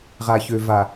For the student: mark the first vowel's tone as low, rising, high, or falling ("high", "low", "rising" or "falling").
low